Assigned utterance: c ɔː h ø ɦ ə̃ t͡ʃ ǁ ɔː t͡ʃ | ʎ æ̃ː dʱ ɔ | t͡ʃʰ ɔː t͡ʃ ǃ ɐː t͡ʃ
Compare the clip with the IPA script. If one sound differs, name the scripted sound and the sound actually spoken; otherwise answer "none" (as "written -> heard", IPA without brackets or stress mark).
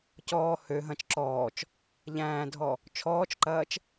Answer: ə̃ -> ɐ̃